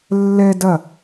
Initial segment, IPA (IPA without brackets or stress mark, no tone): lː